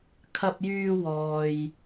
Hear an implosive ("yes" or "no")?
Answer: no